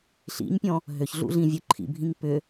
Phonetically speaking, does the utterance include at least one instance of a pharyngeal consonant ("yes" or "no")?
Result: no